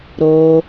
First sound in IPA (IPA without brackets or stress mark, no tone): ɾ